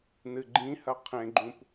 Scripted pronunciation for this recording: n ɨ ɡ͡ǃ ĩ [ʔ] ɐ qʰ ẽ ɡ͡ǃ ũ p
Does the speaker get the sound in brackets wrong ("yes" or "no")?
yes